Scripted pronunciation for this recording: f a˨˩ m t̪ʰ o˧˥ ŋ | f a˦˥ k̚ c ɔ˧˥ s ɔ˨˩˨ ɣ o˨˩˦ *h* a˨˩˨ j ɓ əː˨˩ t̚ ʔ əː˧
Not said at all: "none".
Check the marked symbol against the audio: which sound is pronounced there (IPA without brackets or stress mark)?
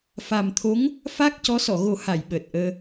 h